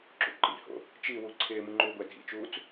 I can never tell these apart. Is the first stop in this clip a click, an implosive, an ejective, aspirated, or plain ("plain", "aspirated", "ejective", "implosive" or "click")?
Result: click